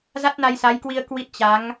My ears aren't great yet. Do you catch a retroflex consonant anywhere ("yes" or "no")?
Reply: no